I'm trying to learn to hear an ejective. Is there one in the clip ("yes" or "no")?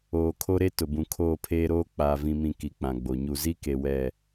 no